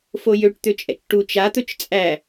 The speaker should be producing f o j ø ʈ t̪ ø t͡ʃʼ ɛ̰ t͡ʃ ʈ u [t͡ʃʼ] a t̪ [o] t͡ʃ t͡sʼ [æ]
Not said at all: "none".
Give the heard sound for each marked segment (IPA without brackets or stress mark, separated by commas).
t͡ʃ, ɵ, æ